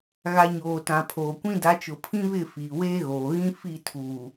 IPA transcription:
ɣ a˨ ɲ oː˨ t ã˨ pʰ oː˨ kʷ ĩ˦ d a˨˦ t͡ʃ ʊ˨ pʰ ĩ˦ β ɪ˦˨ f iː˨ w eː˦ ɣ oː˨ ɣ ĩ˦ f i˦˨ tʰ uː˨

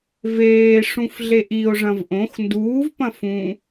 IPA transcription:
v eː ʂ ũ f ɮ e ʔ i o̯ ʐ ɐ̃ v ʔ õ x n d uː v p ɐ̃ f ũ

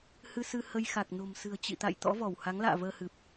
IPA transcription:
h ɨ˧ s ɨ˧ h ə˧ j x a˨˩ k̚ n o̤˨˩ m s ɨ̤˨˩ ə̯ t͡ɕ ḭ˧˨ t̪ a̰˧˨ j t̪ ɔ̰˧˥ v ɔ˧˩ w h a˨˦ ŋ l a̰ː˧˨ v əː˧ h ɨ˨˩ p̚

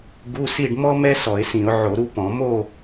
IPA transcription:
ɡ u˧˥˧ s i˥˨ ɖ m ɔ˥ m ɛ˥ s ɔ˧˩˧ ɪ̯ s ĩ˧˩˧ ʊ̯ ʕ o˧˩˧ ɾ u˥˨ p ɔ̃˧˩˧ m o˥˨

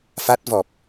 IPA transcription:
f a˦˥ t̚ v ɔ˨˩ p̚

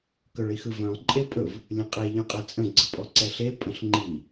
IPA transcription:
k œ ɭ i x ɯ v œ̃ lˠ ǃʼ e pʼ ɵ v | lʲ ə̃ qʼ e ʎ œ̃ qʼ ɛ t͡sʼ ə̃ ɡ͡ǀ ə pʼ ɔ ǀ ɛ ɬ e pʼ ə̃ ɬ ŋ͡ǃ i

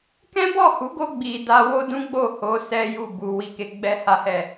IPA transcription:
k ɛ̃˦ b ɔ˦˨ h u˨˦ ɡ o˧ ɡ͡b i˨ d a˧ w o˦ d ũ˦ ɡ͡b o˦˨ h o˨˦ s ɛ˦ j u˦˨ b u˨ w i˧ k e˧ ɡ͡b ɛ˦ h a˦ h ɛ˦˨

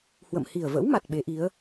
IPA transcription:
h w ə̰˧˨ m h i˨˩ ə̯ v ə̰˧˥ w m a˨˩ t̚ ɓ e˨˦ ʔ i˨˦ ə̯

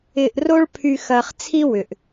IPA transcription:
ɪː˧ ʔ r o˦ ɭ pʰ y˧ x ɐː˧ χ t͡sʰ i˦ w ʏ˨ ʔ

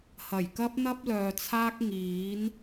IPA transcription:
h ɐ˨˩ j k ɐ˥ p̚ n̪ ɐ˥ p̚ l œː˨ t͡sʰ aː˥ k̚ ŋ iː˨˥ n

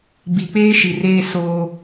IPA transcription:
b i˨ k͡p eː˦ ʃ i˨ r eː˦ s oː˦

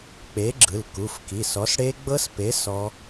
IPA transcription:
k͡p e˨˥ ɡ͡ǁ ɯ˩˧˩ l k u˩˧˩ f k i˩˧˩ s ɔ˨˥ s ɽ e˦˥ ɡ͡b ɤ˦˥ s p e˨˥ s ɔ˦˥

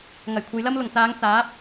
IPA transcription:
ŋ ɐ˨˩ j kʷʰ ɐ˨˧ j l ɐ˥ m l ʊ˨˩ ŋ t͡s aː˨˧ ŋ t͡s aː˨˥ p̚

